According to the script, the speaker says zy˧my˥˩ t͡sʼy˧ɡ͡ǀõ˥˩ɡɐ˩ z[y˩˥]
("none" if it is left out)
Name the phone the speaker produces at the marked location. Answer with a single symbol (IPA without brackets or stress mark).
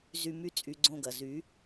y˩˥